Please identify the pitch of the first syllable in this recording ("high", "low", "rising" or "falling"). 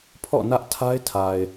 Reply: falling